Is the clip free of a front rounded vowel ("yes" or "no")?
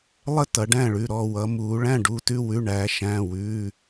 yes